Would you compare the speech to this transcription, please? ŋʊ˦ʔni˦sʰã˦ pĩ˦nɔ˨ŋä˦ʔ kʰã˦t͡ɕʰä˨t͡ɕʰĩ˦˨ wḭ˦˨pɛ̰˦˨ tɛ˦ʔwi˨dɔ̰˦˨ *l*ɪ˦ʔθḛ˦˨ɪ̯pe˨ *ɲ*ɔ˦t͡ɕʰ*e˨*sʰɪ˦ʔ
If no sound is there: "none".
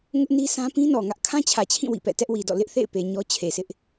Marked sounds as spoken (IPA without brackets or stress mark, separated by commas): l, ɲ, e˨